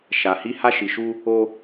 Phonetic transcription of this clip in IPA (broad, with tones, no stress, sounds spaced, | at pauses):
ʃ a˨ h i˧ h a˧ ʃ i˨ ʃ u˧ | o˧